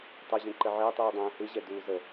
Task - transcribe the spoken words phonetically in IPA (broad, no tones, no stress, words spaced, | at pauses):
tˤəʑɛ̃ǃə ʕɘːtˤuːdˤɛ̃ː hɯʑɛduː zə